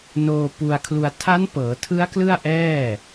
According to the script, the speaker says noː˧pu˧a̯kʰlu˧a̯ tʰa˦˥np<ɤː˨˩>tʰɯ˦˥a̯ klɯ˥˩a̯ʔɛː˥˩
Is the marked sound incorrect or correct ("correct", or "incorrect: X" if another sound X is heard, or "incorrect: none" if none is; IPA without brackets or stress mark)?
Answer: incorrect: ɤː˩˦